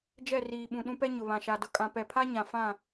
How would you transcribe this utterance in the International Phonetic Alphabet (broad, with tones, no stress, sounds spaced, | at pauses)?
d͡ʒ ɛ˦˨ r iː˨ ɓ ũ˨ ɗ ũ˦ p ɛ˦ ɲ ʊ˨ β ã˨ ʃ a˨ d ʊ˨ kʼ ã˨ p ɛ˨ pʰ a˦ ɲ ã˨ f ã˦˨